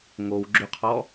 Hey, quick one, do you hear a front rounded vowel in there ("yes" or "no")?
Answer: yes